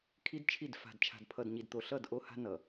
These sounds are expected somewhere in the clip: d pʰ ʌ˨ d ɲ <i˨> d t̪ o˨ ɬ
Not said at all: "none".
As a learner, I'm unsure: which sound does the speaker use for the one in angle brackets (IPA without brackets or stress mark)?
i˨